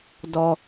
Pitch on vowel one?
low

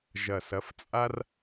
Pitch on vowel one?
low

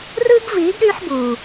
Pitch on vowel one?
high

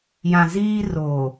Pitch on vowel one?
low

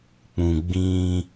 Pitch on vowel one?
low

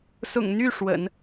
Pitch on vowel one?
low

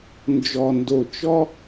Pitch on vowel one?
low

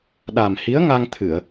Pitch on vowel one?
low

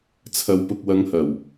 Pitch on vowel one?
low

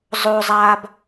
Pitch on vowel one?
high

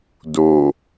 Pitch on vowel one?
low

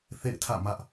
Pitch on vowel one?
falling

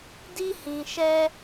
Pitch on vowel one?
high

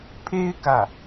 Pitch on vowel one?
high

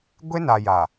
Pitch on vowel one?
high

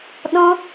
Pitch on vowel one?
high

